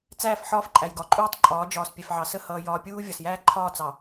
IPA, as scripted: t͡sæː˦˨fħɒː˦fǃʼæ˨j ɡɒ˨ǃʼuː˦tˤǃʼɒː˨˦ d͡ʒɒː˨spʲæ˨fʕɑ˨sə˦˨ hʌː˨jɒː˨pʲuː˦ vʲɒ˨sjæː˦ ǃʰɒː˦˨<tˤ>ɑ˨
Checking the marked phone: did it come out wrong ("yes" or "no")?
yes